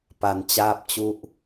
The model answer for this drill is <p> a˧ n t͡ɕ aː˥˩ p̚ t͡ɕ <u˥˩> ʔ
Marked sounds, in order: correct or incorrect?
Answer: correct, incorrect: u˦˥

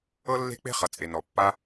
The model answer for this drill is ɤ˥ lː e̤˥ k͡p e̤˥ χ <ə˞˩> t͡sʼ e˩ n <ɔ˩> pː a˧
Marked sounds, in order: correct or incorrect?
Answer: incorrect: ʌ˩, correct

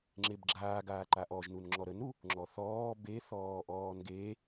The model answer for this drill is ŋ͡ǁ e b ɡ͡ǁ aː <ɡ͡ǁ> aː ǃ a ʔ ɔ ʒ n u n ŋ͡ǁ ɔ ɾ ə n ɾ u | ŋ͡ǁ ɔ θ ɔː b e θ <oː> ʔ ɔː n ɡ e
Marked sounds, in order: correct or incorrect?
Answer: incorrect: ɡ, incorrect: ɔː

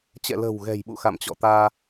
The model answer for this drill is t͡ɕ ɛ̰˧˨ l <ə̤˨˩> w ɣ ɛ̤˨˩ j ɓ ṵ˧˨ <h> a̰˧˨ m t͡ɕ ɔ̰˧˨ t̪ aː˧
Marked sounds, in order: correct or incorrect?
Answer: correct, incorrect: x

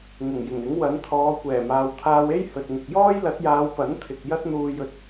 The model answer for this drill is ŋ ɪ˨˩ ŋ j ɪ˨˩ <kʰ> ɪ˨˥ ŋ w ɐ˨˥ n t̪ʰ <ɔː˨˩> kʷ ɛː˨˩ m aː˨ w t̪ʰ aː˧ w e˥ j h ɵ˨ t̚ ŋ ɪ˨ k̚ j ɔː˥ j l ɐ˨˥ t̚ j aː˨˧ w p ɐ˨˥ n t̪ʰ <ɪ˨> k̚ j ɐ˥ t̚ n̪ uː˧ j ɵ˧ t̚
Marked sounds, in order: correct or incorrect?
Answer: incorrect: ŋ, incorrect: ɔː˨˧, correct

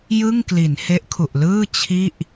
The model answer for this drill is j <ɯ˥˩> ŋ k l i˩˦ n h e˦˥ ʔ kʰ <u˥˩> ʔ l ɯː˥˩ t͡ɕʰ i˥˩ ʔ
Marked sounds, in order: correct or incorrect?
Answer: correct, incorrect: u˨˩

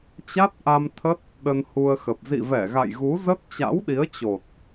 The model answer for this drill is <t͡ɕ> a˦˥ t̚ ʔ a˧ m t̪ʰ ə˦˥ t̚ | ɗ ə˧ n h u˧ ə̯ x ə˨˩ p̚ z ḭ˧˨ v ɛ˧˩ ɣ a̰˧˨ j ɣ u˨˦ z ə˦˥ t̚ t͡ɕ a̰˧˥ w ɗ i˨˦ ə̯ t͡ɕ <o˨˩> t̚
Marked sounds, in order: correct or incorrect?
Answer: correct, correct

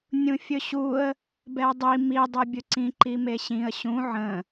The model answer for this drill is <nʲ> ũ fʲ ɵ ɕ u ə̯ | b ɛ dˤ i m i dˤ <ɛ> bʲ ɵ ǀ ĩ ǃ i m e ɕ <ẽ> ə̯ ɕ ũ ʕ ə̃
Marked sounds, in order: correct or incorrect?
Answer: correct, correct, incorrect: ĩ

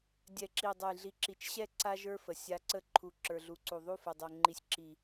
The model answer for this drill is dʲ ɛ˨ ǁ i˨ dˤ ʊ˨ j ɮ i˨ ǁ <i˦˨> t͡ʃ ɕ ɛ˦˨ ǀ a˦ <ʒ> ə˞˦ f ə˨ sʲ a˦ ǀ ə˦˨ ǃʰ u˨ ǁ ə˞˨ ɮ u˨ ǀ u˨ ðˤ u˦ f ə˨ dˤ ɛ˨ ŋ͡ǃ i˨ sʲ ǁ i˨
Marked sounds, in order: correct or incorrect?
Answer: incorrect: i˨, correct

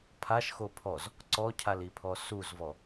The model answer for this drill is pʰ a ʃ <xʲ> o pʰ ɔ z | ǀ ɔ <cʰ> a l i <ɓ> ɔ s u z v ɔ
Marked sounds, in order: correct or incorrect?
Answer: incorrect: x, correct, incorrect: pʰ

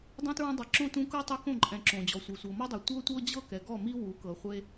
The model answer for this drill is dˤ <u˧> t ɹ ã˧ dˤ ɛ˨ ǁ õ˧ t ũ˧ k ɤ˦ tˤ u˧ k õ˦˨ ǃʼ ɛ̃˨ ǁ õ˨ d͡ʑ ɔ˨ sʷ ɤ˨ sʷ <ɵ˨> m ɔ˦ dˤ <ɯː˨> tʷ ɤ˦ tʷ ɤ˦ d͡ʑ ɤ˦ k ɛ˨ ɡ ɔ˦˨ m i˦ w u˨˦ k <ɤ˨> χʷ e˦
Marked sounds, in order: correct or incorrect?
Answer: incorrect: ũ˧, incorrect: ɤ˨, incorrect: ɯ˨, correct

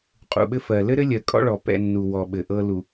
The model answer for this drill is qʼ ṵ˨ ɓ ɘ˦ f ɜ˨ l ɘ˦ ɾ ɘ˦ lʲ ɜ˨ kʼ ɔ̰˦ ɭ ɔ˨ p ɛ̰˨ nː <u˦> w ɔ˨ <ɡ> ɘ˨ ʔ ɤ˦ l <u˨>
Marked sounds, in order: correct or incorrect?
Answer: incorrect: u˨, incorrect: ɓ, correct

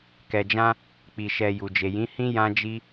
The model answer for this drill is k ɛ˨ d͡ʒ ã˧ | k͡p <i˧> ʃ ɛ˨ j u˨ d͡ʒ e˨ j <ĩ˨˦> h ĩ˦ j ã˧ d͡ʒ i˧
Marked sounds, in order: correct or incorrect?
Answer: incorrect: i˨, correct

